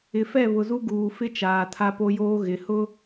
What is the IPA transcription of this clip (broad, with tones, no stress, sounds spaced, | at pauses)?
ɪ˨ f ɛ˦˨ β ʊ˨ z u˦ ɡ uː˨ f ɪ˦ t͡ʃ aː˨ tʰ a˦ p o˦ j oː˦ ɣ ɪ˨ h ʊ˦